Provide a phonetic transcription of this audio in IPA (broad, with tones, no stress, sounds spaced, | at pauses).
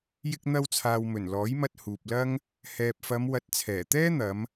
j ɪ˧ k̚ n̪ ɐ˧ w t͡sʰ aː˨ w m ɵ˨˩ n l ɔː˨˥ j m ɐ˧ t̚ h uː˨ p̚ l ɐ˥ ŋ | h ɛː˨ p̚ f ɐ˨˧ m w ɐ˨˥ t̚ t͡sʰ ɛː˨˩ t̪ ɛː˥ n̪ ɐ˨˧ m